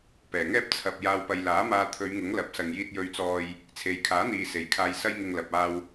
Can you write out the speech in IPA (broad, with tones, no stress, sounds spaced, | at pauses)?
p ɛː˨˩ ŋ ɛː˥ p̚ t͡sʰ ɐ˨ p̚ j aː˧ w p ɐ˧ j l aː˨˥ m aː˧ t̪ʰ ɵ˨˧ ɥ ŋ ʊ˨˥ ŋ l ɐ˨˥ p̚ s ɐ˨ ŋ j iː˧ t̚ j ɵ˧ ɥ t͡s ɔː˧ j | t͡sʰ e˨ j kʰ aː˨˥ n̪ iː˨ s e˨˥ j kʰ aː˧ j s ɐ˥ j ŋ ɪ˧ ŋ l ɐ˨ p̚ aː˧ w